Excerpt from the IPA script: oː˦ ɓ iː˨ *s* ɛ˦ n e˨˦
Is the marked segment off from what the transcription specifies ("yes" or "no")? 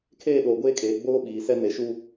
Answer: no